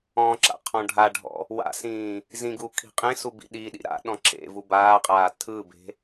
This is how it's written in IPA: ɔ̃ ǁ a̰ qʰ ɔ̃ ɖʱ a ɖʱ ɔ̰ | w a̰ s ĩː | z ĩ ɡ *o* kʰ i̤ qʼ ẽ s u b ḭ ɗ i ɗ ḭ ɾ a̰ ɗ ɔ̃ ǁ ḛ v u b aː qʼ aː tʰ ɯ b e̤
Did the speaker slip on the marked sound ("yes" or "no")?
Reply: yes